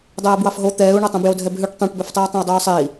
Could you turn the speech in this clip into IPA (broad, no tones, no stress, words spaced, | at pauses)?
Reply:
dˤɛːbwɑfɦo t̪ɛːu̯ɳotˤõ bjodʱɛbɦʉʈ tˤõʈbøftˤiu̯ tˤẽi̯dˤʉːsˤei̯